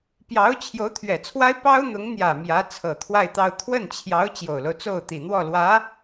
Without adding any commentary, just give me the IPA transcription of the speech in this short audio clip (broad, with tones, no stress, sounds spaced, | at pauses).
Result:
p j ɑ˧˥ ʊ̯ t͡ɕʰ j o˧˥ ʊ̯ t̪ʰ ɥ ɛ˨˩ t͡sʰ w a˥ ɪ̯ p ɑ˥ ʊ̯ n̪ ʊ˧˥ ŋ n̪ j ä˨˩ m j ä˧˥ t͡sʰ ɤ˨˩ t̪ʰ w a˥˧ ɪ̯ t̪ ɑ˥˧ ʊ̯ t̪ʰ w ə˥˩ n t͡ɕʰ j ɑ˧˥ ʊ̯ t͡ɕ j o˨˩ ʊ̯ l o˦ ʊ̯ t͡s o˥˩ ʊ̯ t̪ i˨˩ n̪ w ɔ˥˩ l w ä˧˥